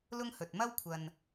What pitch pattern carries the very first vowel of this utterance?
high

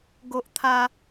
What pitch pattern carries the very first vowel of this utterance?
high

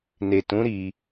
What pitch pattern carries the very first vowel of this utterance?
low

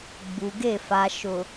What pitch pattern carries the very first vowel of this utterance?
low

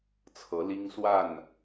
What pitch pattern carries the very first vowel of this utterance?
rising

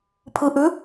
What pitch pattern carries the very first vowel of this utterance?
rising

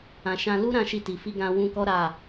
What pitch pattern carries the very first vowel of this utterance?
low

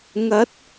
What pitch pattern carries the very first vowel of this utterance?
rising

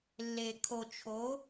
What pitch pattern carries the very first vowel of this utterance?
low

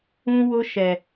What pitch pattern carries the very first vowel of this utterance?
high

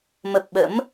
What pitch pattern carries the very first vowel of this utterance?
low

